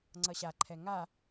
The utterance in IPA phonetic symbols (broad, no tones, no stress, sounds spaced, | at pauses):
ŋ͡ǀ ʌ ɕ a ǃʰ ɛ ŋ a